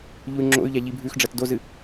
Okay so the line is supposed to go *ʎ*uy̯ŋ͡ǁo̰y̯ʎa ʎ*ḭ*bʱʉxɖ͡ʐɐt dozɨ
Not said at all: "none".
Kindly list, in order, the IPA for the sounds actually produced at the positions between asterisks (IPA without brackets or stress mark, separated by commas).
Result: ʎ, i